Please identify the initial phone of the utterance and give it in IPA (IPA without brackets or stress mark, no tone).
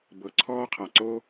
b